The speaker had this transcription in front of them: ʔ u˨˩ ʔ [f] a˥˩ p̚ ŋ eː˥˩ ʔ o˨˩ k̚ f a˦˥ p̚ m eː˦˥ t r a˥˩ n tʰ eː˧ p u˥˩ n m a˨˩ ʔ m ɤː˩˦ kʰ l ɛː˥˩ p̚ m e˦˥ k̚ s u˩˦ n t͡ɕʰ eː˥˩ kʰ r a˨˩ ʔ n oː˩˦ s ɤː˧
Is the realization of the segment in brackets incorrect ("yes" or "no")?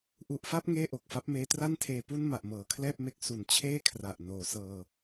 no